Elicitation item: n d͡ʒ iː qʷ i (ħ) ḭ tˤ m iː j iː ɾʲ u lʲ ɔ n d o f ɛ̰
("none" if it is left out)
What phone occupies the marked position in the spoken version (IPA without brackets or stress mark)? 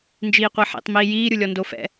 ħ